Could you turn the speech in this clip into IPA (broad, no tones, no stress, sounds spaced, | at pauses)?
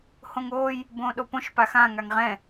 h õ ŋ oː j | b õː ɗ o p õ ʃ p a x ã ŋ a ŋ ʁ ɛ̃